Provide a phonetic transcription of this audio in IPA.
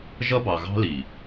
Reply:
ʒ ʌ˦ b ɑ˨ ɣ ɑ̤˦ l i˨

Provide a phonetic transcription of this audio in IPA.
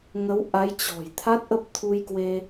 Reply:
ŋ ə˨˦ w ʔ a˨˦ j t͡ɕ ɔ̤˨˩ j t̪ʰ a˦˥ t̚ ʔ ə˦˥ p̚ t̪ʰ u˧ j k w e˧

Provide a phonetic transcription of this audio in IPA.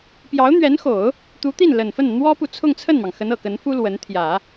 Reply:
p j ɑ˧˥ ʊ̯ n̪ ɥ ɛ˧˥ n x o˨˩˦ ʊ̯ | t̪ u˧˥ t̪ i˥˩ n l ə˨˩ n f ə˥˩ n n̪ w ɔ˥ p u˨ t͡sʰ ʊ˥˧ ŋ t͡sʰ ə˥˩ n m ɑ˩ ŋ x ə˧˥ n ɤ˨˩ k ə˧˥ n f u˥ l w ə˧˥ n t̪ʰ j ä˨˩˦

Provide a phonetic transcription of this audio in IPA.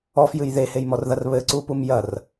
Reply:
ɔ f j ɨ j ð e h e j m ɔ r ð ɐ r β ɘ ǀ u p u m j ɐ r

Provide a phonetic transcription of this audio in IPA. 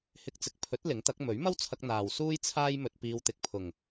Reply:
h ɪ˧ k̚ t͡s ɪ˨ k̚ pʰ ɵ˨˥ t̚ l ɪ˨˥ ŋ t̪ ɐ˨˥ k̚ m ɵ˨˥ ɥ m ɐ˥ w t͡sʰ ɐ˧ k̚ n̪ aː˨ w s uː˥ j t͡sʰ aː˥ j m ɵ˧ t̚ p iː˧ w t̪ ɪ˨˥ k̚ pʰ ʊ˨˩ ŋ

